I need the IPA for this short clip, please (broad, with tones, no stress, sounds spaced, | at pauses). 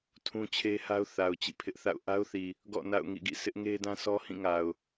tʰ ũ˦ t͡ɕʰ e˦ h a˦ ʊ̯ θ a˨ ʊ̯ t͡ɕ ḭ˦˨ pʰ ɪ˦ ʔ θ a̰˦˨ ʊ̯ ʔ a˦ ʊ̯ θ i˨ | ɡ ɔ̰˦˨ n a̰˦˨ ʊ̯ ŋ ḭ˦˨ ɡ ḭ˦˨ s ɪ˦ ʔ ŋ e˦ d ã˦ s ɔ˦ h ĩ˦˨ ŋ a˨ ʊ̯